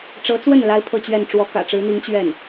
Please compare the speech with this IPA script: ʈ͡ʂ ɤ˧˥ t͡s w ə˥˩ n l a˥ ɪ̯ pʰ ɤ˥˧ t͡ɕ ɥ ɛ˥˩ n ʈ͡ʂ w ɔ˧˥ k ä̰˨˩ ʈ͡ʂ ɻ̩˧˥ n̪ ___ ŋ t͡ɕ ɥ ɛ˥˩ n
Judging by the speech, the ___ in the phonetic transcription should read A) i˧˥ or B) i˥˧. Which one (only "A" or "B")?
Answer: A